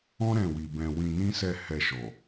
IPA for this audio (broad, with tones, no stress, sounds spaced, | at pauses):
ɔ̃˦ ɾ ɛ̃˦˨ w i˧ b ɛ̃˧ w ĩ˧ n ĩ˦ s ɛ˦˨ h ɛ˧ ʃ ɔ˨